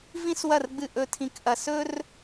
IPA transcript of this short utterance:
v ĩ˥ s w ɐ˥˧ r ɡ͡b ɨ˥˧ ʔ ɵ˥˧ tʰ ĩ˥˧ k ʔ ɐ˥˧ s ɵ˥ r

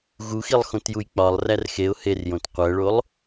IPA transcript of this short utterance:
ɣ u x i lˠ x õ t j u j k͡p ɒ lˠ r æ r x e ʊ̯ h e r j õ t qʷ æ ɭ o lˠ

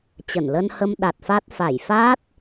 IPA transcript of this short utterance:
t͡ɕ ə˧˩ n l ə˧ n h ə˧ m ɗ a˨˩ t̚ f a˦˥ t̚ f a˧˩ j f aː˦˥ t̚

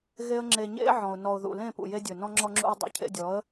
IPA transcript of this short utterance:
ɣ e˦ ə̯ ŋ͡ǁ e˧ ɲ ḛ˦ ʕ ɔ̃˨ ʊ̯ n ɔ˨ ʊ̯ ð ṵ˨ l ẽ˦˨ p ṵ˨ j e˧ dʲ ɵ˨ n ɔ̃˧ ŋ͡ǁ ɔ˧ ŋ͡ǁ ṵ˧ ɪ̯ dˤ ḛ˧ cʰ ḛ˧ dʲ ɔ˨˦ ə̯

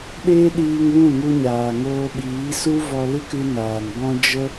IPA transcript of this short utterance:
ɗ eː˦ ɗ iː˧ ŋ w ũ˦˨ ŋ u˧ ɲ aː˨ ŋ oː˧ ɓ iː˨˦ s u˦ v ɔ˧ l ɨ˦ k ɨ˧ n aː˨ n b ɔ̃˦ d͡ʒ ə˦

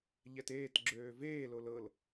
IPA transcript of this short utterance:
ʎ ɛ t eː t ɡ͡ǁ øː v eː l o l ɤ l

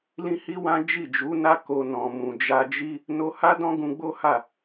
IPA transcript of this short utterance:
l ĩ˦ h i˦ w ã˦ d͡ʒ i˦˨ d͡ʒ u˨˦ n a˦ k o˧ n ɔ̃˨ m ũ˨ d͡ʒ a˧ d͡ʒ i˦ | n o˧ h a˦ d ɔ̃˦ ɡ ũ˧ ɡ͡b o˦ h a˦˨

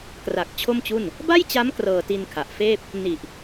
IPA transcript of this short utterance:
k r a˨˩ k̚ t͡ɕʰ o˥˩ m t͡ɕ u˥˩ n | b a˥˩ j t͡ɕ a˦˥ m k r ɤː˧ t i˧ n kʰ a˨˩ ʔ f eː˥˩ p̚ | n i˨˩ ʔ

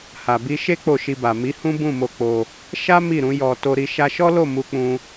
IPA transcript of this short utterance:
h a˨ b i˧ ʃ e˦ k͡p o˦˨ ʃ i˧ b a˨ m i˨˦ h ũ˦ b ũ˦˨ m o˧ k͡p o˧ | ʃ a˦ m i˦˨ ɾ ũ˨˦ j ɔ˧ t o˧ ɾ i˧ ʃ a˧ ʃ ɔ˦ l o˦˨ m u˧ k͡p ũ˧

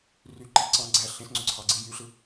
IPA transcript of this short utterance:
r y ǃ i ǀ ɑ̃ ɡ͡ǀ æ ɬ ẽ s ŋ͡ǀ o ǀʰ ɑ ɡ͡ǀ i j y ɬ ɯ

